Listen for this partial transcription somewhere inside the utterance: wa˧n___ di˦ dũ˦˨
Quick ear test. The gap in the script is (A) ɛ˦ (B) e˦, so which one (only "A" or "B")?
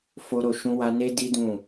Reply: B